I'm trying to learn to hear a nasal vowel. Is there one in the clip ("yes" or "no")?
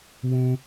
yes